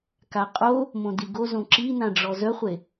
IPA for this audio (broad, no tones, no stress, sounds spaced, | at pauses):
k a qʼ o | m õ d i ɡ o z õ ǁ i n ã ɖ͡ʐ ɔ z œ χʷ e